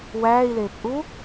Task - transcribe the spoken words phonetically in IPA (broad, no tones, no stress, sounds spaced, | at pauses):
w æː i̯ l eː p ʔ u